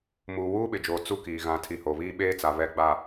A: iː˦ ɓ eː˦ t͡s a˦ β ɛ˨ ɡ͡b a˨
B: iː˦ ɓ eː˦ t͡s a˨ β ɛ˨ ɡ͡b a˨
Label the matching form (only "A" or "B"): B